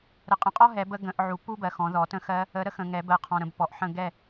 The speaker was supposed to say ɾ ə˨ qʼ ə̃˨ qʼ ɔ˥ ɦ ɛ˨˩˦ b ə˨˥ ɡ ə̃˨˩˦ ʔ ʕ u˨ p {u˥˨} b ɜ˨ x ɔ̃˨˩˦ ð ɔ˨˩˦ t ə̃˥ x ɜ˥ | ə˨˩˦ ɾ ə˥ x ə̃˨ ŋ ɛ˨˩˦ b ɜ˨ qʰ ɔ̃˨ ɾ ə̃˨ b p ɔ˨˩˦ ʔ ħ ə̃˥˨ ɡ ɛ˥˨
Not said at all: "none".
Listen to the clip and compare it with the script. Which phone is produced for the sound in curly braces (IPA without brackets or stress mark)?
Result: u˥